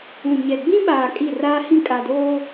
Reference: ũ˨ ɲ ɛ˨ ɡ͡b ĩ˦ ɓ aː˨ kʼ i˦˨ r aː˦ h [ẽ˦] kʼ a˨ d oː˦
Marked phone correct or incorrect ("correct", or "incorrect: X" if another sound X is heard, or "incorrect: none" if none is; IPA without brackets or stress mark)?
incorrect: ĩ˦